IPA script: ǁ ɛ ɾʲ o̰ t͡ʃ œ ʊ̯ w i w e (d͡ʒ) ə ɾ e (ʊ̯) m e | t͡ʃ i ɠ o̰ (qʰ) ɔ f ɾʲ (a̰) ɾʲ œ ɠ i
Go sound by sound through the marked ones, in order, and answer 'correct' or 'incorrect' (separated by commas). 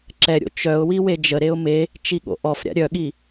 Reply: correct, correct, incorrect, correct